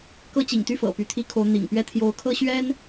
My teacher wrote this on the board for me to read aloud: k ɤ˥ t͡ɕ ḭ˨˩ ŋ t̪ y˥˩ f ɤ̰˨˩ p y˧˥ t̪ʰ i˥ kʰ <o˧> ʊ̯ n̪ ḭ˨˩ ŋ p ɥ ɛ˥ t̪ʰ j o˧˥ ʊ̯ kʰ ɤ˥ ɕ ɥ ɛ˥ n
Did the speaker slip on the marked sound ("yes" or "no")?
yes